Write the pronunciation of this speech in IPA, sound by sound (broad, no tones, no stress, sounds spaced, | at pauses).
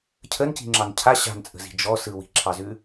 cʰ ə n c i̤ ŋ͡ǁ ɑ n cʰ a ɕ a̤ n t͡sʼ ə̤ z i̤ d͡ʒ ɔ s ɯ w i̤ ǁʰ ɑ z ʉ